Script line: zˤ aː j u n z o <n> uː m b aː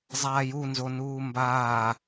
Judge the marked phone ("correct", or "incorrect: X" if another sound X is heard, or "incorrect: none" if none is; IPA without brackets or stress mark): correct